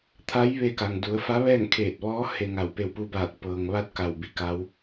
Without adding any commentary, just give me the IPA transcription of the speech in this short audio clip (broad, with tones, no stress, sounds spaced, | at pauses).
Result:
t̪ʰ a˧˥ j ʋ e˧ k a˩ ŋ d u˩˧ ə̯ f a˧˥ ʋ ɛː˥˨ ŋ kʰ eː˧˩ t̚ ʋ ɔː˧˥ h e˧ ŋ a˧˩ w p e˧˩ w p u˧ b aː˧˩ t̚ p ɤː˩ ŋ ʋ a˧ t̚ k a˧˩ w b i˩˧ k a˧˥ w